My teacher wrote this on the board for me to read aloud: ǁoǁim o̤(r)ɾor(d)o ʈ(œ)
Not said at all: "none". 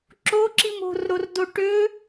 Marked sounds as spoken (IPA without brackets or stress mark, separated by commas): r, d, ø